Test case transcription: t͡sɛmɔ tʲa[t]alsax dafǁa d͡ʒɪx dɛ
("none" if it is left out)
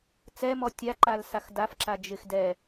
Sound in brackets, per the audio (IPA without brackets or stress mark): ǃ